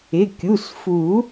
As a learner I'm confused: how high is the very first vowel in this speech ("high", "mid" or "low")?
high